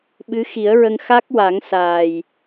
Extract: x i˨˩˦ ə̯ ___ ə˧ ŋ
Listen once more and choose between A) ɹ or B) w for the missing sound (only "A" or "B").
A